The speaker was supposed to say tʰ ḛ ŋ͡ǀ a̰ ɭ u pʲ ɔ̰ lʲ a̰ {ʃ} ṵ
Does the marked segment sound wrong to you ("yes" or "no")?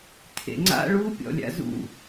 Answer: yes